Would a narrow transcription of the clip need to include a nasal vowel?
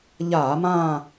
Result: yes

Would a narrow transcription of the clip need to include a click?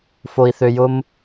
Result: no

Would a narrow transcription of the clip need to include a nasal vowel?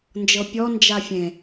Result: yes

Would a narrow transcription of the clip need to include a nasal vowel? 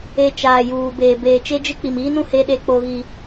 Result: yes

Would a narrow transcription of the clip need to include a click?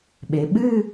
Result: no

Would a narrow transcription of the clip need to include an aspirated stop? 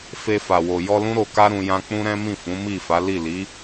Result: no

